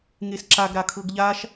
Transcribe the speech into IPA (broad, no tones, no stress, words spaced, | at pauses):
ŋesǁaɡɾa kʰɤɡʎaʃ